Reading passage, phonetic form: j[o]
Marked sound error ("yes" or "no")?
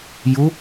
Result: yes